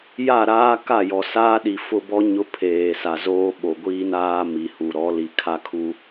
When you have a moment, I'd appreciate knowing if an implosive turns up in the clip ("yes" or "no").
yes